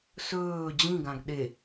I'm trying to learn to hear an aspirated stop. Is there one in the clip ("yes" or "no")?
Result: no